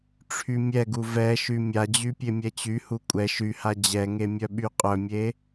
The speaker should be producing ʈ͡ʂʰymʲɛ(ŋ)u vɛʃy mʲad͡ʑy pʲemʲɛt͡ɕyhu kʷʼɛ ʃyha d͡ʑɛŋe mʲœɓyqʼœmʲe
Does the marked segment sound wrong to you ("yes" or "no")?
yes